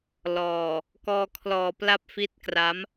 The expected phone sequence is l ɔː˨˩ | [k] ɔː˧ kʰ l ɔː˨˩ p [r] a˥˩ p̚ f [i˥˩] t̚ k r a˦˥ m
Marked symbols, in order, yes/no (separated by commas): yes, no, no